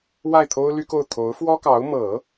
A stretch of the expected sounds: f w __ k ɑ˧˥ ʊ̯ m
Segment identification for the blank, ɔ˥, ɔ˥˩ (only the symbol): ɔ˥